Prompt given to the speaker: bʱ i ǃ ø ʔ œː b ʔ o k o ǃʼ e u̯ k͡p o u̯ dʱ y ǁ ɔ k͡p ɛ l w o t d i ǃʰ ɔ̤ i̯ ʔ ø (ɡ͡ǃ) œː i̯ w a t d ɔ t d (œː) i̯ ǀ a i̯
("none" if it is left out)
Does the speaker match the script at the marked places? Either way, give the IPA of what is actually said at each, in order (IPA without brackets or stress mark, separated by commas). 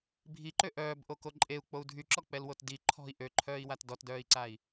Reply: ǃʰ, œː